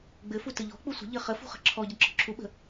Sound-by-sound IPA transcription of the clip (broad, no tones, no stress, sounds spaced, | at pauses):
ɡ͡b ɘ f u t ɘ ʎ ɔ̤ k͡p u sʷ ə̤ ʎ ɘ χ ə f ṳ χ ə̤ ǁʰ ɔ ɟ ə ǁ ɔ̤ ǁʰ u ɓ ə̤